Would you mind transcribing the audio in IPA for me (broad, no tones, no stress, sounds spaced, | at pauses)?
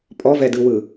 pʼ ɔ v ɛ d ɯ w ɯ